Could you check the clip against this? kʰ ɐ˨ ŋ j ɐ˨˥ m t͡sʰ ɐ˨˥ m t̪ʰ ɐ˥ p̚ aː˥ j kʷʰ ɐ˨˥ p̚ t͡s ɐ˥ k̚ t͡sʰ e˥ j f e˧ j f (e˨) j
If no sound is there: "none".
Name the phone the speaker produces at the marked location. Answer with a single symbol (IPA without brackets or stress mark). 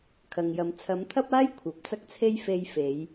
e˨˧